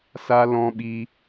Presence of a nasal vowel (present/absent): present